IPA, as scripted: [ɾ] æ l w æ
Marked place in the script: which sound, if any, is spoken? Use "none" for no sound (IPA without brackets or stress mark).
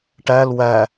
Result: ʈ